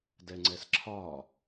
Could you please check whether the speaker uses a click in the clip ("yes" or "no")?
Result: yes